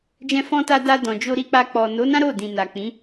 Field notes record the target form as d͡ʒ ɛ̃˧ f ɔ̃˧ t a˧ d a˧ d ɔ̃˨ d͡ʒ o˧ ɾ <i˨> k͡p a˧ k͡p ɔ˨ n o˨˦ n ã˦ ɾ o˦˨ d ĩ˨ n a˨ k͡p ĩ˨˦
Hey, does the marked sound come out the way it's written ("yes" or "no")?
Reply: no